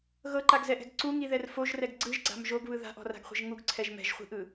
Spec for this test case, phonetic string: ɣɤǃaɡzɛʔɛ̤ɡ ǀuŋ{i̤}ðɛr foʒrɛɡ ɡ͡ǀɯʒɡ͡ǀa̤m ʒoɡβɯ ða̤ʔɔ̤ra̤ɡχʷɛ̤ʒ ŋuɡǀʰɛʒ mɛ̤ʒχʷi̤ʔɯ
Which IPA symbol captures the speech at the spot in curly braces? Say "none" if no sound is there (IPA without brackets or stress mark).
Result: i